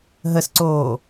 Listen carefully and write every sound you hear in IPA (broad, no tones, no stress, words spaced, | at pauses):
ɦəsǀoː